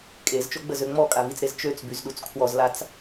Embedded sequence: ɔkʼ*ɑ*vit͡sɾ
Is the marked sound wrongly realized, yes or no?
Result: yes